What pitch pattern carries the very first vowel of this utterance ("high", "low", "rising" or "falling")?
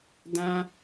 high